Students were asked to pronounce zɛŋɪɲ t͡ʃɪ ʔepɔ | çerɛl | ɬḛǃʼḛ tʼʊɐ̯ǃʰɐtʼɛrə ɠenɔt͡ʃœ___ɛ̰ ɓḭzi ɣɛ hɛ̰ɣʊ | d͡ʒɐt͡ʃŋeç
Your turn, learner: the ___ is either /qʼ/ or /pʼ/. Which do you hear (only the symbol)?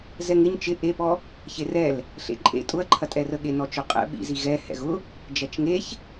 qʼ